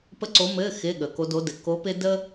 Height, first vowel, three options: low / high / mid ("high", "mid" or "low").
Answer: mid